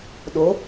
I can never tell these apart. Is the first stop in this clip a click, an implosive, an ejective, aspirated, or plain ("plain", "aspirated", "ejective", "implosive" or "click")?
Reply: implosive